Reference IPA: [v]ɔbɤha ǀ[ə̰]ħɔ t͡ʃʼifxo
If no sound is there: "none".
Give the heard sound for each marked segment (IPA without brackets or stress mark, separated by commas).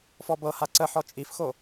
f, ə